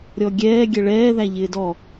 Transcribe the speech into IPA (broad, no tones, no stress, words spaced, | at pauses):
ɾʲɔɡʲɛː ɡʲɛɭɛːðæ ʎɪːdɔ